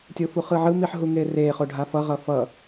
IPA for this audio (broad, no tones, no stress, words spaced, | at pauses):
tʲofuχɯʕɯ miħɦuŋere χoɖʱafʌ ʁʌfʌ